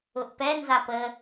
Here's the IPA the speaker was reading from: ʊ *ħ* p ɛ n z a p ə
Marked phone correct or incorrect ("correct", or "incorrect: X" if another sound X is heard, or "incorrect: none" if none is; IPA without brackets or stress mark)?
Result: incorrect: ʔ